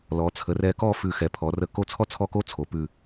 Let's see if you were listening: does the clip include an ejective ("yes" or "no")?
no